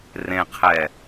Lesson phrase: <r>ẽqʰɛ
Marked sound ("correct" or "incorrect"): correct